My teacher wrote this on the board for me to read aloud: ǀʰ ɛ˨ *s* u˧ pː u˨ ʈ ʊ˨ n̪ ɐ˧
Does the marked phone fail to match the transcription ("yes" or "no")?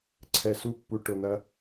no